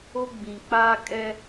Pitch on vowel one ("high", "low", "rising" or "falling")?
high